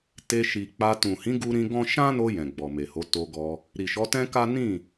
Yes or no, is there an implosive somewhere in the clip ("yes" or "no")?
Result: no